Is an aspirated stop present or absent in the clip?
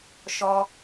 absent